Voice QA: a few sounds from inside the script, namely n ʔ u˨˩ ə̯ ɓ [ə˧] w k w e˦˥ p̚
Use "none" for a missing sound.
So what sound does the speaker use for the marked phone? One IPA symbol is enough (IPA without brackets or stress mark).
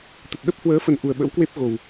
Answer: ə̰˧˥